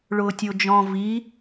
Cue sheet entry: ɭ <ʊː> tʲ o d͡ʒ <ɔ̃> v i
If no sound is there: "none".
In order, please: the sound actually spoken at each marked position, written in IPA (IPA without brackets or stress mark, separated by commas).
ʊː, ɔ̃